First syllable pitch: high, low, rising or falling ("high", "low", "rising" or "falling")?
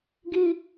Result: high